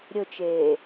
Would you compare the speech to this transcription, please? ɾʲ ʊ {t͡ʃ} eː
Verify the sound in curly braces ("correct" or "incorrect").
correct